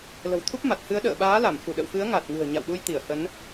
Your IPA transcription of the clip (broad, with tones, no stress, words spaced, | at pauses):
lə̤˨˩wt̪ʰu˦˥p̚ ma˨˩t̚hɨ˨˦ə̯ɗə̰ː˧˨ ɓaː˨˦ la˧˩mfu˧˩ɗə̰˧˨w fɨ˨˦ə̯ŋa˨˩t̚ŋɨ̤˨˩ə̯ ɲa̰˧˨wɗu˧jt̪i˧˩ə̯ hə˨˦n